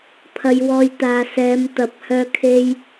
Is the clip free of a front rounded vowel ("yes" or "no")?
no